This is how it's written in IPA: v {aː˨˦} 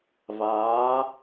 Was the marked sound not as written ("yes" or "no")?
no